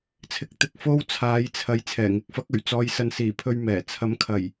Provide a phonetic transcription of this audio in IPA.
t͡sʰ ɪ˧ k̚ t̪ ɪ˧ k̚ f o˥ w t͡sʰ aː˨˧ j t͡sʰ ɐ˨˧ j t͡sʰ ɛː˨˩ ŋ ɪ˨˥ k̚ f ɐ˨˥ k̚ ɵ˨˩ ɥ t͡s ɔː˧ j s ɐ˧ n s iː˨˩ pʰ ɵ˧ ɥ m ɛː˨˩ t͡sʰ ɐ˨˧ m kʰ ɐ˨˩ j

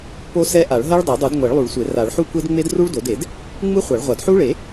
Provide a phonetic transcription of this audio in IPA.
p o˦˥ s ɛ˦˥ ʔ a˨˩˦ ɭ ɦ ɛ˦˥ ɭ dˤ a˨˩˦ dˤ u˨˩˦ d ŋʷ ɛ˨˩˦ ɭ lˠ u˨˩˦ ɭ sʷ e˨˩˦ r a˨˩˦ ɭ ħ u˦˥ kʷ e˦˥ d ŋ͡m e˦˥ d r u˦˥ ɭ d o˨˩˦ d e˨˩˦ d | ŋ͡m ɯ˦˥ χʷ a˨˩˦ ɭ ʁʷ a˨˩˦ d ħ u˦˥ ɭ e˨˩˦

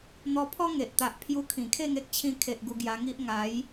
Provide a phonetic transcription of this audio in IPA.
n̪ ɔ˧ pʰ ɔ˦ ŋ e˨ ʔ t̪ a˨ ʔ pʰ j u˧ kʰ ĩ˨˩ kʰ e˥˧ ŋ e˦ k̚ t͡ɕʰ ĩ˧ kʰ e˨ ʔ ɡ u˧ ɡ j a˧ ŋ i˦ ʔ ŋ a˨˦ j

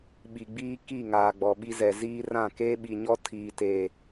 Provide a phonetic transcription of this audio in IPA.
ɓ i˨ ɡ͡b iː˦ k i˦˨ ŋ aː˨ ɡ͡b ɔ˨ ɓ i˦ z ɛ˨ z iː˦ r ã˦˨ k eː˦ ɓ i˨ ɲ ɔ˦ tʰ iː˨ t e˨

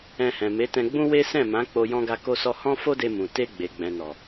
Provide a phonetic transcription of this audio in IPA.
ɛ̃˧ h ɛ̃˨ m e˨˦ t ɛ̃˧ ɡ͡b ũ˦ w e˦ s ɛ̃˦˨ m ã˨˦ k͡p o˧ j ɔ̃˧ ɡ a˧ k o˧ s ɔ˧ h ɔ̃˦ f o˦ d e˧ m ũ˨ t e˧ ɡ͡b e˨ ɡ͡b ɛ̃˨ n ɔ˨

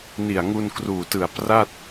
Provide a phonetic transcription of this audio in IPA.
n i˨˩ a̯ ŋ u˧ n k r uː˨˩ t ɯ˨˩ a̯ p r a˥˩ t̚

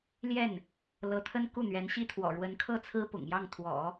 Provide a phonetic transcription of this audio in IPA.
l j ɛ˥˩ n | l ɤ˧˥ t̪ʰ ə˥ n k u˥˩ n̪ ɥ ɛ˧˥ n ɕ i˥ t̪ʰ w ɔ̰˨˩ ɻ w ə˧˥ n kʰ ɤ˥˩ t͡sʰ ɹ̩˥ p ʊ̰˨˩ ŋ j ɑ˥˩ ŋ t̪ʰ w ɔ̰˨˩˦

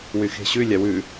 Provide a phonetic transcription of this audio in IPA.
w y x e̤ ɕ ʉ lʲ ɑ w ʉ

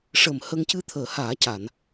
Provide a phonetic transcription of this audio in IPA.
ʂ əː˨˩ m h ə˧ ŋ c ɨ˧ t̪ʰ əː˨˩˦ h aː˨˩˦ c a˨˩˨ n

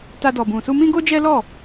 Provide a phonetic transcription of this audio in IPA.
t a˧ d ɔ˨ b ũ˨ s u˧ m ĩ˦ ɡ o˦ d͡ʒ ɛ˦ l ɔ˦˨

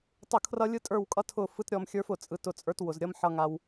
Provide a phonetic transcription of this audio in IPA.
tˤ ʊ˦˨ kʰ r ʌ˦ lʲ ɯ˦ tʼ ə˞˦˨ w kʼ ʌ˦ tʰ ʊ˦˨ f ɯ˦ t ɾʲ ɔ˧ m xʲ ə˞˦ f ʊ˨ t͡sʼ ɯ˨ t ʊ˨ t͡sʼ ə˞˦ t w ʊ˨ z ɾʲ ʌ˦ m ħ ʌ˦ ŋ a˦ w

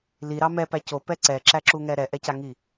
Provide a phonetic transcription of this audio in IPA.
l i ɾ ɑ m ɛ p æ c o p ɛ ǀ ɛ ǁ æ ǁ u ŋ ɛ ɾ ɛ ʔ ɛ c a ŋ i

